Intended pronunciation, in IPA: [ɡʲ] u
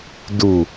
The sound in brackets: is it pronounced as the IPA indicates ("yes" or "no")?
no